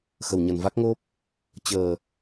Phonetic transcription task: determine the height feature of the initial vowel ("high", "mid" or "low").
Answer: mid